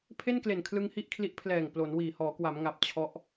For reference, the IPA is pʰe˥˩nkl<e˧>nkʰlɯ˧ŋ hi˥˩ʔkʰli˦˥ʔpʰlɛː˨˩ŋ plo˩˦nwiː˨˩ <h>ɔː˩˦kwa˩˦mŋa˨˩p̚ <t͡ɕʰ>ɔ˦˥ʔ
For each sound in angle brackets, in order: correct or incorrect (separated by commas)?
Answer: incorrect, correct, correct